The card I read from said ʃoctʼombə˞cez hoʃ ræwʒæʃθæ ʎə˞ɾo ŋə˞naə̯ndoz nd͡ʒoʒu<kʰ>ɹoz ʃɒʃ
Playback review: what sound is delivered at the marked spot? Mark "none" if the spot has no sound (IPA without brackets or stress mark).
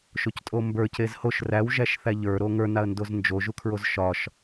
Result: kʰ